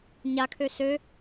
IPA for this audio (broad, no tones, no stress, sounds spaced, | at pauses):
ɲ a kʰ ø s ø